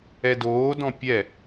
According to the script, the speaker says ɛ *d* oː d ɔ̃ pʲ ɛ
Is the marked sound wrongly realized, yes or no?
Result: no